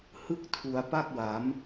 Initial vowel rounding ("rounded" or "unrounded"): unrounded